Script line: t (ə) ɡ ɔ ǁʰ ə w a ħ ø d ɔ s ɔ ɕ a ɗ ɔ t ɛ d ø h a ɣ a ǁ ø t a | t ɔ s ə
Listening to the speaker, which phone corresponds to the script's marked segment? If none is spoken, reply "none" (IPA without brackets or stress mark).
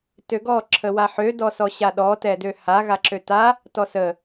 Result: ø